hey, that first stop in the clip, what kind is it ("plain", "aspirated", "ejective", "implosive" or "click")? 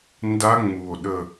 plain